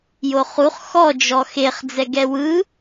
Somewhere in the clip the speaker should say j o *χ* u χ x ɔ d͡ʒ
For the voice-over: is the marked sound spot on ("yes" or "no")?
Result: yes